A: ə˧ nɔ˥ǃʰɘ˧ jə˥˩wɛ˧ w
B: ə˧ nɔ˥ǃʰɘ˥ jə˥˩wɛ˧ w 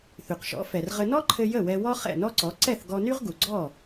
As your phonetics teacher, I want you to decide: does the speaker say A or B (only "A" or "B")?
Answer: A